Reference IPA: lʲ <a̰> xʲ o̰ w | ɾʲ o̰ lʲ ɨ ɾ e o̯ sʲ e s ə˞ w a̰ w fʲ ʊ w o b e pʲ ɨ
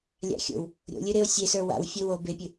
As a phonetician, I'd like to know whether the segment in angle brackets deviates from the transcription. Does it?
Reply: no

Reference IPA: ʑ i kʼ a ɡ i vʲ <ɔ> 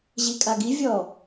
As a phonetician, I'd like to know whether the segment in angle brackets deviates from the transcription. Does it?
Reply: no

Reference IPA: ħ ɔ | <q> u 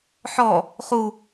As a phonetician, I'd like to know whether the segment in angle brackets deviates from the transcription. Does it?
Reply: yes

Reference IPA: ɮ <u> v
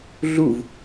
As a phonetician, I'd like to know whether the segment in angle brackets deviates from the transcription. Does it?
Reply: no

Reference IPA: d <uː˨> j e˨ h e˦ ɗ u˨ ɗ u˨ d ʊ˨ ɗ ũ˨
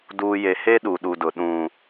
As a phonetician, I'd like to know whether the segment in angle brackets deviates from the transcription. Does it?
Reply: no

